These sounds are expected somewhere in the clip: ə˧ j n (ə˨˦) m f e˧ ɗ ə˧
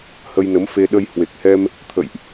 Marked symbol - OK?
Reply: yes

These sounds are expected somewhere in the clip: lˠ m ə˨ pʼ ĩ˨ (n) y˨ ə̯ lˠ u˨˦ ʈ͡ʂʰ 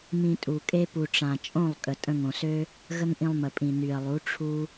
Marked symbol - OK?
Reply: yes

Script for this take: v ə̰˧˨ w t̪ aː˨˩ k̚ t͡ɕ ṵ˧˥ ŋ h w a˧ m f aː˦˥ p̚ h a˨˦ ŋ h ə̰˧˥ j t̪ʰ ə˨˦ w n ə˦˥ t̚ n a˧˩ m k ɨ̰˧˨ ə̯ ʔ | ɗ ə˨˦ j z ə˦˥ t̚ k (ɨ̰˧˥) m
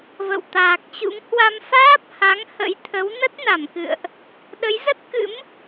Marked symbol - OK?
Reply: yes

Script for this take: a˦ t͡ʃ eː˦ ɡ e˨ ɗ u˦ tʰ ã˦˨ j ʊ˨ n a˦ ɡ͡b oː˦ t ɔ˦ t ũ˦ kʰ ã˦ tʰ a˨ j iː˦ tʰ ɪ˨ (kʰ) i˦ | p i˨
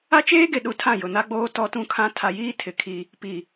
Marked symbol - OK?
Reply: yes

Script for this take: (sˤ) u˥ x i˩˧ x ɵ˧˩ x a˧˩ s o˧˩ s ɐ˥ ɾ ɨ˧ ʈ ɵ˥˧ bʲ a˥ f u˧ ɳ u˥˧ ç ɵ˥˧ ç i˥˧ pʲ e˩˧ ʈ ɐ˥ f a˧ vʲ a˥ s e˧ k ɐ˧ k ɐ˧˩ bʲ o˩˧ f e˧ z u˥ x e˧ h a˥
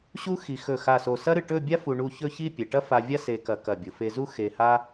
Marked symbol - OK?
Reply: no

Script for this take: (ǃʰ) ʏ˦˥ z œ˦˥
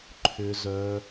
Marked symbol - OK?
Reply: yes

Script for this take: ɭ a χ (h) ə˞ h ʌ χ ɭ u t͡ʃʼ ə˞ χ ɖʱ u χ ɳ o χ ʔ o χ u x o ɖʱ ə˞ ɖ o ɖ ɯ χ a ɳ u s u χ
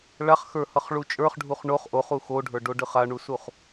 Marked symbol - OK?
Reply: no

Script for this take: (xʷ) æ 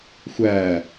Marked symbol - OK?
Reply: yes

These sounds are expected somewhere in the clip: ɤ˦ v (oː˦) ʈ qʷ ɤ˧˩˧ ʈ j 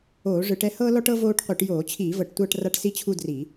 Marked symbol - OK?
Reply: yes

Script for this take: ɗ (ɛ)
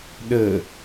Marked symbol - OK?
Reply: no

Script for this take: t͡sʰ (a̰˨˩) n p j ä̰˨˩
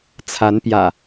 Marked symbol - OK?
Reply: no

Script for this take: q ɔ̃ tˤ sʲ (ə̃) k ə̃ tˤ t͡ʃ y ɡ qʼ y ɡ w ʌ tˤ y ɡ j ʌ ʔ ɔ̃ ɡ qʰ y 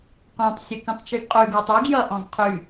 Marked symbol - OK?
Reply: no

